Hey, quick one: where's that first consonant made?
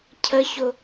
palate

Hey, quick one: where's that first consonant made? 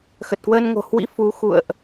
velum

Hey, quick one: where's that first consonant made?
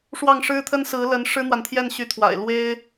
retroflex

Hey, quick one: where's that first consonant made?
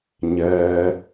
palate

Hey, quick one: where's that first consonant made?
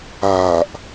throat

